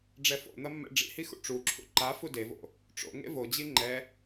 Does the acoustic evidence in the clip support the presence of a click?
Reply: yes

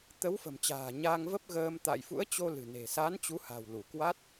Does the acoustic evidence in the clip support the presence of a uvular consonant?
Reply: no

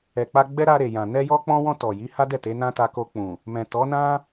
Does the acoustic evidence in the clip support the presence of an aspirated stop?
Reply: no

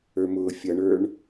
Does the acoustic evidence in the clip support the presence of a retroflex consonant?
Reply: yes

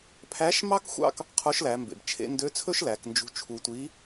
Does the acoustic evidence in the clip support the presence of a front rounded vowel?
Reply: yes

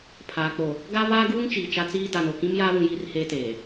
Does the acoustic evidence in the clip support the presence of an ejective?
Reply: no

